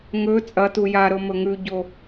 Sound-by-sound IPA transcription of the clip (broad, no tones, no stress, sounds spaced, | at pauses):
ŋ ɵ t͡sʼ ɐ t u j a ɾ ɵ m ɵ ŋ ʉ ɟ o